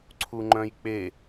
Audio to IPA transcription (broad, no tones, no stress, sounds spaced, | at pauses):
ǀʰ u ŋ͡ǃ œ̃ j k͡p e